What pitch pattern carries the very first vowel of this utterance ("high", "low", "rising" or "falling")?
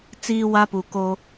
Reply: high